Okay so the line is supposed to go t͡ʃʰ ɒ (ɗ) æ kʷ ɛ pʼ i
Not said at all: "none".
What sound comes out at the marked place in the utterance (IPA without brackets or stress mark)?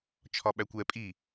ɓ